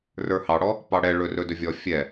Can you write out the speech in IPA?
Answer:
r ə˞ h ɑ ɽ ɔ | p ɑ ɽ ɛ ɭ ɵ r ɵ d ɵ vʲ ɔ fʲ ɛ

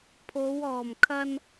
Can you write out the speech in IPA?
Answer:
pʰ o˨˧ w ɔː˨˩ m kʰ ɐ˧ n

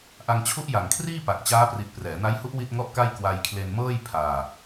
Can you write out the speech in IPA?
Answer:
ʔ a˧ ŋ t͡ɕʰ u˦˥ ʔ j a˨˩ ŋ kʰ r iː˥˩ p a˨˩ k̚ t͡ɕ aː˦˥ p r i˨˩ t̚ p r ɛː˩˦ n a˦˥ j h u˦˥ ʔ w i˥˩ t̚ ŋ ɔ˥˩ ʔ k a˥˩ j k w a˧ j kʰ l e˧ n m ɤː˥˩ j pʰ aː˧

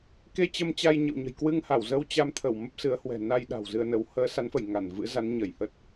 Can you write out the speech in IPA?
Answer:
k e˧ t͡ɕ ə˧ m t͡ɕ a˧ j ɲ ə̰˧˨ w ɲ ə̤˨˩ j k w ɨ˧ ŋ h a˧˩ w z ə˧ w t͡ɕ a˧ m t̪ʰ ə˧˩ w m ə˦˥ p̚ s ɨ˨˦ ə̯ h w ɛ̤˨˩ n a˧ j ɗ a̤˨˩ w z ɨ˧ ə̯ n ə˨˦ w h əː˨˦ s a˨˦ n f ə˧˩ j ŋ a˧˩ n v ɨ̰˧˥ z a˨˦ n ɲ ə˧˩ j h ə˦˥ t̚

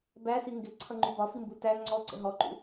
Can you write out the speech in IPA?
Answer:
b æ s i ŋ ɡ ɪ ǀʰ ʌ ŋ͡ǃ u b ɒ f i m b u t æ ŋ͡ǀ ɔ ǀ ə̰ ɦ ɔ ǃ ṵ

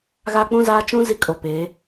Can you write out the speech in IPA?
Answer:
ɣ a˦ k͡p ũ˦ z aː˦ t͡ʃ ũ˦ z i˦ kʼ o˨ p eː˨˦

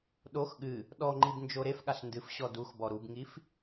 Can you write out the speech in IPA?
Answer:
ɗ o x ɠ ɨ | ɗ ɔ ŋ͡ǃ i b n d͡ʒ o ɾ e f ɠ a ɬ n d ɨ f ɕ ɔ d u x b ɔ ɾ u b ŋ i f

